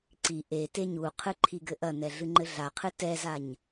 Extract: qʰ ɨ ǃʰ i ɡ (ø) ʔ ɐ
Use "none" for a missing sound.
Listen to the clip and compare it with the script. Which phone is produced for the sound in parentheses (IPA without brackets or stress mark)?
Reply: ɘ